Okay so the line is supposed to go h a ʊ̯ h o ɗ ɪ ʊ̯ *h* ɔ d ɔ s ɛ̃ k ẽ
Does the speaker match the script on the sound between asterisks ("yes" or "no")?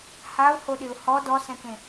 yes